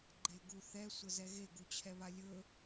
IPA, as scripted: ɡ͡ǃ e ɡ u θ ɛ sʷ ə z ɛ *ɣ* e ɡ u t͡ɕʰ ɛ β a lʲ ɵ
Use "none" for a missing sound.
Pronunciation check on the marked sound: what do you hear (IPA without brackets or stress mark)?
ɣ